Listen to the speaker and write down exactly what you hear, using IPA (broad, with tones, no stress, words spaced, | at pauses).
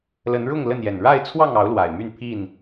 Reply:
lə˨˦nɻʊ˥˨ŋ lə˥˨njɛ˨˩n ɻa˥˨ɪ̯t͡sʰwɑ˥˨ŋɑ˨˦ʊ̯ lwa˨˩ɪ̯my˥˨npʰi˥˨n